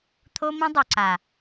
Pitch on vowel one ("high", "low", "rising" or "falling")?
high